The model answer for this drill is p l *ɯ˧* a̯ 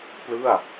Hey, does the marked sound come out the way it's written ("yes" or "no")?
no